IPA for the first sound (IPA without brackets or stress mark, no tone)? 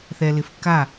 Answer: θ